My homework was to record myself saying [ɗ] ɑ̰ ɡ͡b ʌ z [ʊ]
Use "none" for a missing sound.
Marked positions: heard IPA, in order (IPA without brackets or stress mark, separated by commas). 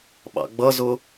ɓ, ʊ